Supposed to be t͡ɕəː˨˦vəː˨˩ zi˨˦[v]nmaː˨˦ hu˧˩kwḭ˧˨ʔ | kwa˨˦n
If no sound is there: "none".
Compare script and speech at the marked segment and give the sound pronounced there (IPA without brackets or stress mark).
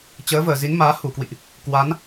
none